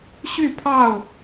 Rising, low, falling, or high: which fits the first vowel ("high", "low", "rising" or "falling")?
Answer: falling